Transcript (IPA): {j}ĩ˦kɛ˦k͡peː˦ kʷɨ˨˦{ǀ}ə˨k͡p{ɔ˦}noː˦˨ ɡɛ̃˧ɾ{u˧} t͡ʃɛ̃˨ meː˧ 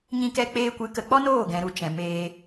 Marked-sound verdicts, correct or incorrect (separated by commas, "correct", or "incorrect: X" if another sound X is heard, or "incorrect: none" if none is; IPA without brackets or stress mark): incorrect: ɲ, incorrect: k, correct, correct